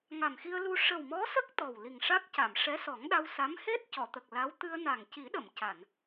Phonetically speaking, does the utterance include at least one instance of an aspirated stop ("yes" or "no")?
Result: no